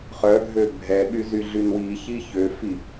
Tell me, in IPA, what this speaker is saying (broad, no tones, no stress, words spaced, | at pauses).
χœɡʱø bʱɛɓy zyɮynwiçi çøfi